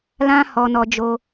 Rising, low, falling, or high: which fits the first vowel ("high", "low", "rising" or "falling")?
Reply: high